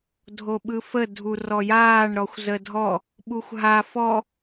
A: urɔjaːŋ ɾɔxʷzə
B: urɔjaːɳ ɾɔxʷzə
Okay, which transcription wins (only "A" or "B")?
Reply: B